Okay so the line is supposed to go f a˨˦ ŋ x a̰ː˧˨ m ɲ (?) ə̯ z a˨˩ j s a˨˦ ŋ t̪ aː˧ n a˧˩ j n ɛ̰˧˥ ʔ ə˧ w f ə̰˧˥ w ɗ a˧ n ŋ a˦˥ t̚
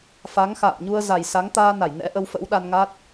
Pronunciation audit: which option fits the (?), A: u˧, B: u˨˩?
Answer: A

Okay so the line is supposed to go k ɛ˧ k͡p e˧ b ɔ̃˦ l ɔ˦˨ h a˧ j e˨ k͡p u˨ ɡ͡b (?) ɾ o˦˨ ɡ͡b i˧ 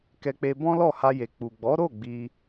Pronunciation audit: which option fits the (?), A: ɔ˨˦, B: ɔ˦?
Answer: A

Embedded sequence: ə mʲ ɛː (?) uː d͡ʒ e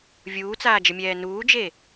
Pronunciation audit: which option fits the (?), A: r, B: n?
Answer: B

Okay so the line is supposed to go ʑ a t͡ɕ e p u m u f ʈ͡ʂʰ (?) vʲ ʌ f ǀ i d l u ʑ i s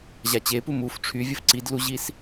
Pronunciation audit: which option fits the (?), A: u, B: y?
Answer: B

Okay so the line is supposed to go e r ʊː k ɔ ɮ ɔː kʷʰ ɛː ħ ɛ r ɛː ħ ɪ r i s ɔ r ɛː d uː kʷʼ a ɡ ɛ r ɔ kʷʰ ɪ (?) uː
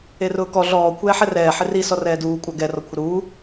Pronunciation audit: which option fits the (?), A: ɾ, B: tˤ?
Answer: A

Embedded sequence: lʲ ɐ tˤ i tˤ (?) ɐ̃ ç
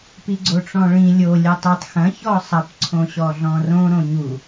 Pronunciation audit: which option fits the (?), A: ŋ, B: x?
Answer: B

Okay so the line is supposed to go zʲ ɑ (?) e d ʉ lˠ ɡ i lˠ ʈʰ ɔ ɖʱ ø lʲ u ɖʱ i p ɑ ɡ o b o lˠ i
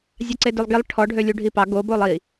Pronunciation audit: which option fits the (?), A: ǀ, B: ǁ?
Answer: A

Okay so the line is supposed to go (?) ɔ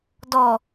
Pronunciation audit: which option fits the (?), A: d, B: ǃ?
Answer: A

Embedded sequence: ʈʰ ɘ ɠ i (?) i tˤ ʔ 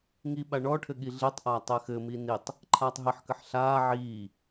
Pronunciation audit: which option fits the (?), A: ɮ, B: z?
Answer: A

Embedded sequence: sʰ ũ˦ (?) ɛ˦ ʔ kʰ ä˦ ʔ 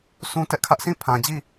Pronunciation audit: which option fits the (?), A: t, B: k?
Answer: A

